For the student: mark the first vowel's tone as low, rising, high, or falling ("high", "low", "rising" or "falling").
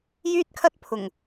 high